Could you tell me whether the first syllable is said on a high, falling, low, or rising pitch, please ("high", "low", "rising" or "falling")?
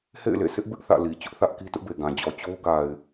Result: falling